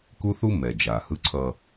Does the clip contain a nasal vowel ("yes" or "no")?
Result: no